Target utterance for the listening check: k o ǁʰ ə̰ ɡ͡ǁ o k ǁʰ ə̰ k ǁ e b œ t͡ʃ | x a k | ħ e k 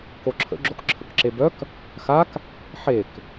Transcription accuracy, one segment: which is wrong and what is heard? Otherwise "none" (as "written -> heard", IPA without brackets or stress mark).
t͡ʃ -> k